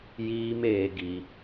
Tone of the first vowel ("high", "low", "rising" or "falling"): high